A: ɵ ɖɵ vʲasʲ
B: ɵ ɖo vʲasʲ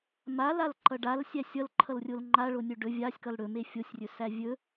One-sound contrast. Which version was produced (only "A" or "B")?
A